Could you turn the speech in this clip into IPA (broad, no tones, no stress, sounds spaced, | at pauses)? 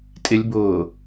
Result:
tʼ ɪ lʲ b ʊː